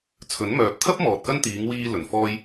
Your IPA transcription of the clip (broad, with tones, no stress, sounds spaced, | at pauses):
t͡sʰ ɵ˨˥ n m œː˨ p̚ t̪ʰ ɐ˥ p̚ m ɔː˨ t̚ k ɐ˥ n t̪ iː˨˧ ŋ w iː˧ l ɵ˨˩ n f ɔː˥ j